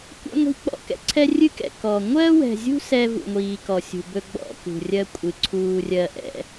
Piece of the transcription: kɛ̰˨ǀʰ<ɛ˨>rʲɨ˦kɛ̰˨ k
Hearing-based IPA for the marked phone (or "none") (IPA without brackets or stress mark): ɛ˦